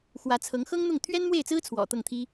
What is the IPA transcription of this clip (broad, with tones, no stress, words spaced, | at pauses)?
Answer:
xwä˧˥t͡sʰɤ˧˥ŋ xɤ˥ŋn̪ʊ˥˩ŋ t̪ʰɥɛ˥nmwe˥˩ɪ̯t͡sɹ̩˥ t͡sʰwɔ̰˨˩t̪ɤ˥˩ŋt̪ʰi˥